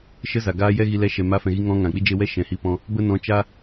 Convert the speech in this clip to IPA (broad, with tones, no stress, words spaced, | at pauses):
ʃə˧ za˨ɡaː˦ jɛ˦ɣi˧ lɛ˧ʃɛ˨ ma˧fɛ̃˨ɣi˧ ŋɔ̃˧ ŋã˨k͡pi˦d͡ʒe˧ wɛ˦ʃɛ̃˨ hi˧pɔ̃˧ | bə˦nɔ̃˧t͡ʃa˦